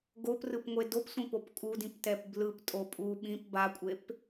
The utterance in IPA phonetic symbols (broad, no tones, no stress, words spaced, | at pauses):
ɡoprɯpŋʷe dopsʷĩpop kʼudĩptɛp blɯptʼo pʼu ɓĩp bakʷʼep